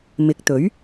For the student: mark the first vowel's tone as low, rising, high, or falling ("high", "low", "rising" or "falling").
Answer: rising